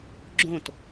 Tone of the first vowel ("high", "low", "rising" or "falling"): falling